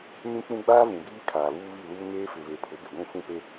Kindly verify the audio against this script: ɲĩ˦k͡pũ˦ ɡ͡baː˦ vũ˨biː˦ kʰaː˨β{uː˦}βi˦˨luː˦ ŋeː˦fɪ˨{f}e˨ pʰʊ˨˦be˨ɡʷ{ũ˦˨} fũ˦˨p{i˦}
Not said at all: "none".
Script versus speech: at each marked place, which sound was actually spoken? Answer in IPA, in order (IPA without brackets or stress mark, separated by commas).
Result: uː˦, β, ũ˦˨, e˦